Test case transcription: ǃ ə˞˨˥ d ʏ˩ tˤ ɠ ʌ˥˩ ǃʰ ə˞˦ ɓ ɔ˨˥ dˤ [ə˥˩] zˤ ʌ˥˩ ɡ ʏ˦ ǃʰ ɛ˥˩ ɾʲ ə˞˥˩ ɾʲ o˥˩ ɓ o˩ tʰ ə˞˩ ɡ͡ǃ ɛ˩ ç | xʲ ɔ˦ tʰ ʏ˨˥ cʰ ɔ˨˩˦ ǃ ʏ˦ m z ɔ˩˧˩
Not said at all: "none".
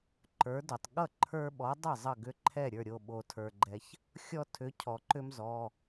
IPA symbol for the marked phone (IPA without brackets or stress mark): ə˥˩